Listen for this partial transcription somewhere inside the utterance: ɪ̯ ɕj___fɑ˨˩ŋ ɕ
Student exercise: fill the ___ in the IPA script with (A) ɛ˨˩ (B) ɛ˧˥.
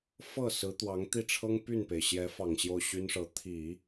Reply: B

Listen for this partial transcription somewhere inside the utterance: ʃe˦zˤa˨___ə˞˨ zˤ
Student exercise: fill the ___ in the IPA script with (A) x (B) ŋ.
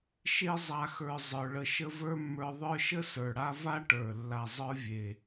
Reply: A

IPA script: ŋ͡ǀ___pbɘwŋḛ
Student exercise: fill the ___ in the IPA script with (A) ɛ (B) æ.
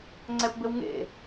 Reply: A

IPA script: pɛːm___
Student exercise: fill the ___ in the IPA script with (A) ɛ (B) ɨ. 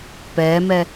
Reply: A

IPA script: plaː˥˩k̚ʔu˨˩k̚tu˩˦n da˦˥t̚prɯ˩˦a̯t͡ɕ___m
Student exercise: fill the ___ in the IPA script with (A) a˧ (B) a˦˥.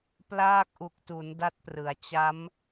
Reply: B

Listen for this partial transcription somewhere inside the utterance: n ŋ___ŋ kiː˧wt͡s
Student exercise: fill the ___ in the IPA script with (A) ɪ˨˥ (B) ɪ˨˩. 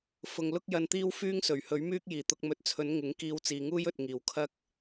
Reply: A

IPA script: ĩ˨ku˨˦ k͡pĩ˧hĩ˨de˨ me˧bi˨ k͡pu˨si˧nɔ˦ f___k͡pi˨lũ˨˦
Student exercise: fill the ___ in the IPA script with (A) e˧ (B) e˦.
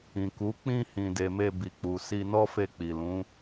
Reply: A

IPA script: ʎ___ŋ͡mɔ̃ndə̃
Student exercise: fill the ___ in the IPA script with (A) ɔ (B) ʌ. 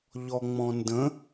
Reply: A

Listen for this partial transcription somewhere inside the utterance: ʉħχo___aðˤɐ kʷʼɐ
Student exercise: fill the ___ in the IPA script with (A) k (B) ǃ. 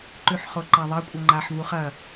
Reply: B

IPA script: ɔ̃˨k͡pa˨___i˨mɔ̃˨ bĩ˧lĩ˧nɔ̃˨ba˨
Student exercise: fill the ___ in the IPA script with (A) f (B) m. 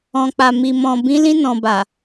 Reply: B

